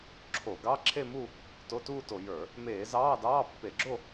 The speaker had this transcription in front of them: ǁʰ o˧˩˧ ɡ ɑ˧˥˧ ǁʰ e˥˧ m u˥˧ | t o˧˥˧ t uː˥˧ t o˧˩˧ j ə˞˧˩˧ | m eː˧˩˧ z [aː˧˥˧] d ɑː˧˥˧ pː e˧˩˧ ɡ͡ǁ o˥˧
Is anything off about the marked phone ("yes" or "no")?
yes